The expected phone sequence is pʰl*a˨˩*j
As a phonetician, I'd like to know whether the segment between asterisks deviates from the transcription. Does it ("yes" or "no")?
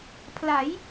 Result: yes